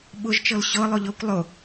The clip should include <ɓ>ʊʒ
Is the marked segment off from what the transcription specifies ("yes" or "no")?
no